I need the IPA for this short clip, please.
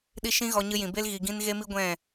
ɗ i˦˨ ʃ ĩ˧ ɣ ɔ˧ ɲ ɨ˧ j ĩ˨ b e˧ l ɣ i˨ ɡ ĩ˧ n ɣ e˦ m i˦ ɡʷ ɛ̃˦˨

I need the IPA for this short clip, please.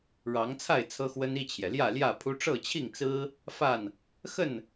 ɻ ɑ˨˦ ŋ t͡sʰ a˥˨ ɪ̯ t͡sʰ ɤ˦ x w ə˦ n i˥˨ t͡ɕʰ j ɛ˩ l j ä˥˨ l j ä˥˨ pʰ u˦ ʈ͡ʂ ɤ˥˨ t͡ɕʰ i˥˨ ŋ t͡s ɹ̩˦ | f a˥˨ n | x ə˥˨ n

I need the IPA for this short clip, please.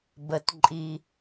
b ə˩ t ǃʼ i˩

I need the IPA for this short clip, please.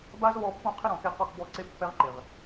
b a˦ z β ɔ˧ pː õ˦˨ qʰ ɪ˦ ɾ ɔ̃˨ k e˧ q ɔ˦˨ k b ɔ˦˨ ǀ e˦ pː ɛ˦ ʁ ǃ ɪ˨ ʁ

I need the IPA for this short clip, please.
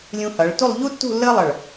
lʲ ũ˧ h ʌ˩˧ ɭ t u˥˧ lˠ ʎ u˥ tː ṳ˥˧ lː əː˥ lˠ ʌ˧˩ ɭ

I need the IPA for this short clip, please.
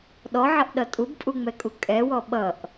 ɗ ɔ ʕ ʌ ʔ ɗ ʌ tʼ u b pʼ u ŋ͡m ɛ kʼ u kʼ ɛ w ɔ ɓ ʌ ʔ

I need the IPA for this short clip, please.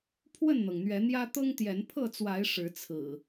pʰ w ə˥˨ n n̪ ɤ˩ ŋ n̪ ɥ ɛ˨˦ n̪ j ä˦ t̪ ɤ˦ ŋ t̪ j ɛ˨˦ n pʰ ɤ˥˨ t͡s w a˨˦ ɪ̯ ʂ ɻ̩˨˦ t͡sʰ ɹ̩˨˩

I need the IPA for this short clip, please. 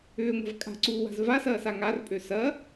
ʏː ŋʷ a̤ v kʼ a̤ ǀ uː w a̤ z v a s ɐː s a ŋ a r pʼ ø s ɐ

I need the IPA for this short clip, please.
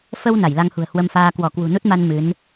f ə˧ w n a˧˩ j l a˧ ŋ h ṳ˨˩ ə̯ h w ə˧ m f aː˧ k w ɔ˧˩ k w ṳ˨˩ n u˦˥ t̚ m a˧ n m ɨ˨˦ n

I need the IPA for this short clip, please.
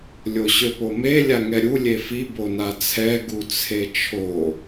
lʲ o ɕ ø p o m e lʲ a ŋ ɛ ɾʲ u lʲ e f i b o n a t͡sʰ ɛ ɡ u t͡sʰ e t͡ʃʰ o

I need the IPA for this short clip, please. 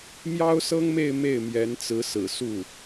m j ɑ˥ ʊ̯ s ɤ˥ ŋ m e˥˧ ɪ̯ m e˥˩ ɪ̯ m j ɛ˧˥ n t͡s ɹ̩˧˥ s ɹ̩˨˩ s u˥˩

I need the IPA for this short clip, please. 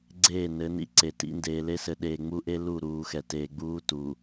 ɡ͡ǀ eː˦˨ n ɘ˨˦ n ḭ˨ ǀ e˨ t ḭ˦ n d eː˨ l e˦ s ɘ˨ ɗ eː˨ ŋ͡m u˦ ʔ e˦ l u˦˨ ɾ uː˨ x ɛ˨ t eː˨ ɡ͡b uː˦ t u˨

